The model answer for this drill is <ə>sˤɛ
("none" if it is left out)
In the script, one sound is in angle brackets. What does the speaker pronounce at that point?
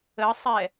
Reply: ə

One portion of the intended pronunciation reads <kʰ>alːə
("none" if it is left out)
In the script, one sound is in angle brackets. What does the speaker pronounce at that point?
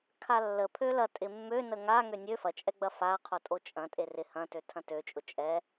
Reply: kʰ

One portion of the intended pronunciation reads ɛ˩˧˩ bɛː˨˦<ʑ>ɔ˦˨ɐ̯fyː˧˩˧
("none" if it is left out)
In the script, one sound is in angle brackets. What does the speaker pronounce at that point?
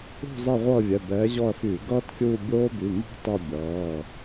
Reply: ʑ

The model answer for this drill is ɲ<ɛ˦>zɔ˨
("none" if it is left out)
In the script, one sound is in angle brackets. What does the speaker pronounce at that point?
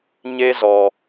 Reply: e˦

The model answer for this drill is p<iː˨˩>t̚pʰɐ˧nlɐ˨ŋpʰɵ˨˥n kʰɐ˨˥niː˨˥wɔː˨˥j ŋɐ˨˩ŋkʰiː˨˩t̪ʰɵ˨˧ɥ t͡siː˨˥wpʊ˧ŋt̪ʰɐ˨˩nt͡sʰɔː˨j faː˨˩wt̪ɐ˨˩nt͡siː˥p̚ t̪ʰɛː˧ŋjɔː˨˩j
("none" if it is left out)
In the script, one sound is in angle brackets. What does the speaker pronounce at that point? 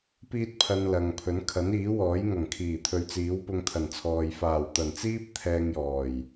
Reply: iː˥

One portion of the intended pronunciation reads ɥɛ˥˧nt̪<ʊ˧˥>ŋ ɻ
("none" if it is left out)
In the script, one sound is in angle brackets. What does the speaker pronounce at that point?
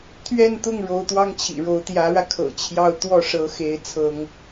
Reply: ʊ˥˩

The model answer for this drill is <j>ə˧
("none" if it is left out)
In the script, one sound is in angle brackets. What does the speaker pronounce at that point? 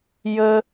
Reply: j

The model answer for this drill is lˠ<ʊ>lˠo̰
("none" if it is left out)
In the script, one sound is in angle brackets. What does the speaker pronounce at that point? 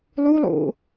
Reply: u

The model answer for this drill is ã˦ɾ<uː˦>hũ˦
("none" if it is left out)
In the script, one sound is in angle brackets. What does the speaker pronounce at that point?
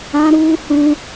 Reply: uː˦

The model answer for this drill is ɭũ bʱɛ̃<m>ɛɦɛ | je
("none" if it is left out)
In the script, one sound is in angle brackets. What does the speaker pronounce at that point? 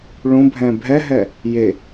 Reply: bʱ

